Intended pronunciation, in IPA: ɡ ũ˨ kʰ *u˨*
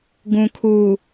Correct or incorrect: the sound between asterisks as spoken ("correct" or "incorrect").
correct